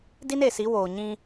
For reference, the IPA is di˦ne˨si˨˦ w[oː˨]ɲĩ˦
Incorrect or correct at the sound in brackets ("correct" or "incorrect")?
correct